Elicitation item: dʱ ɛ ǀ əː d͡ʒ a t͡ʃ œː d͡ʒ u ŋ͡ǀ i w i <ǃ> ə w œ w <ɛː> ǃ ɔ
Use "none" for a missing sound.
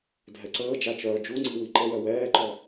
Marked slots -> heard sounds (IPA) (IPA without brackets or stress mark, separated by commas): ǃ, ɛː